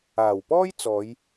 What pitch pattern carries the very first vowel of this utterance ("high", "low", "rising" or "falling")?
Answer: low